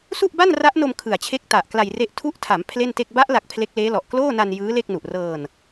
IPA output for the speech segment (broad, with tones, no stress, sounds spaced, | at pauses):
s u˥˩ ʔ b a˥˩ n r a˦˥ ʔ n o˧ m kʰ ɯ˨˩ a̯ t͡ɕʰ e˦˥ k̚ t a˨˩ ʔ k l a˧ j r e˦˥ ʔ tʰ u˥˩ ʔ tʰ a˩˦ m pʰ l e˥˩ n t e˥˩ k̚ b a˦˥ ʔ l a˨˩ k̚ pʰ l e˦˥ k̚ l eː˦˥ l ɔ˨˩ ʔ k l oː˥˩ n a˧ n j ɯː˦˥ l e˥˩ k̚ n u˨˩ ʔ r ɤː˧ n